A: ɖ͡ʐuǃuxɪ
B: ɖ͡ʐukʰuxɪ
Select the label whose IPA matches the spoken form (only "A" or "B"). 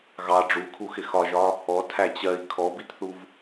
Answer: B